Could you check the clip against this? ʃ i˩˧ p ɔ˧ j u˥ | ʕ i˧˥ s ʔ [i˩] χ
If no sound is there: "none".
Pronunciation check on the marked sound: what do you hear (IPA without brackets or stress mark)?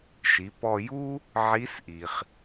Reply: i˩